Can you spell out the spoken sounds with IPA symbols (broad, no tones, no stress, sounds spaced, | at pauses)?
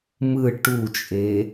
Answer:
m ɯ ʈ u t͡ʃʼ e